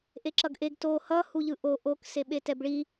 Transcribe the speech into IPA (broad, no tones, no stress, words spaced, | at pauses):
ʔeǁʌɡʔeɡ to hʌ huʎɯʔo ʔok seɓetɛbɭi